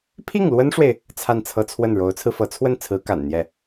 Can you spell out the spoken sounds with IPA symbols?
pʰ i˥˩ ŋ l w ə˥ n ʂ w e˨ ɪ̯ | t͡sʰ a˥˩ n t͡sʰ ɤ˥ t͡sʰ w ə˥˩ n ɻ o˧˥ ʊ̯ t͡sʰ ɹ̩˧ f ɤ˧˥ t͡sʰ w ə˥˩ n t͡sʰ ɹ̩˧˥ k a̰˨˩ n n̪ j ɛ˥˩

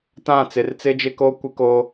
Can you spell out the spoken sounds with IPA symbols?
t ã˦˨ t͡s ɪ˨ r t͡s ɪ˦ d͡ʒ ɪ˦ k o˦ kʷ ɪ˦ k o˦

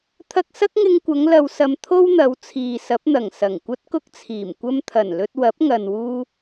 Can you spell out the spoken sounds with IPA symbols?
t̪ʰ ɐ˧ k̚ s ɐ˥ k̚ ŋ ɪ˧ ŋ kʷ ɐ˨˧ ŋ l ɐ˧ w s ɐ˧ m t̪ʰ o˥ w n̪ ɐ˨˧ w t͡sʰ iː˨ s ɐ˨˥ p̚ n̪ ɐ˨˩ ŋ s ɐ˨˩ ŋ kʷ ɐ˥ t̚ k ʊ˥ k̚ t͡sʰ iː˨˩ m kʷ ɐ˧ m t̪ʰ ɐ˨˩ n l ɵ˧ t̚ w ɐ˨˥ p̚ ŋ ɐ˨ n w uː˥

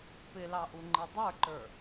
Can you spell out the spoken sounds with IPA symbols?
p ɪ l ɑ ʔ u ŋ͡ǃ i dˤ ə˞ ǃ ə˞

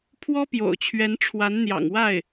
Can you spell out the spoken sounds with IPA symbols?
pʰ w ɔ˥ p j o̰˨˩ ʊ̯ t͡ɕʰ ɥ ɛ˧˥ n ʈ͡ʂʰ w a˧˥ n n̪ j ɑ̰˨˩ ŋ w a˥˩ ɪ̯

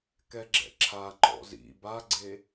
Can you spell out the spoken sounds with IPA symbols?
k ɛ ɡ͡ǁ ɛ̰ ǁʰ a ŋ͡ǃ ɔ̰ z ḭ b a ɡ͡ǀ e

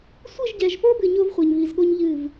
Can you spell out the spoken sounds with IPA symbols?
sʷ ɨ˦˨ ʒ ɟ ɛ˨ ʒ p o˦ b ɨ˨ ɲ o˦ v χʷ ɛ˨ ɲ β i˨ z ɠ o˦ ɲ ʎ ɨ˦˨ v

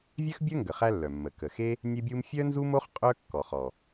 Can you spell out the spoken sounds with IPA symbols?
vʲ œ˥ x bʲ œ˥ ŋ ɡ ə˩ χ æ˥ lː œ˩ mː ə˩ k ə˩ x e˥ | nʲ e˥ bʲ u˥ m fʲ œ˥ n z u˥ m o˥ χ qʼ œ˥ kː ɔ˩ χ ɔ˩

